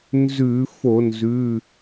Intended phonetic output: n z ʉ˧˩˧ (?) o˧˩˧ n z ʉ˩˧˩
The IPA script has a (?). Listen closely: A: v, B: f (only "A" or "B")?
B